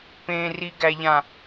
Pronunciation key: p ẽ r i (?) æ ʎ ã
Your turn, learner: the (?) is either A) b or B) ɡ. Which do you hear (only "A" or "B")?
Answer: B